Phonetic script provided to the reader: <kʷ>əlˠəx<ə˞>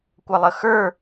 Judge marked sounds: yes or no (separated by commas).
yes, yes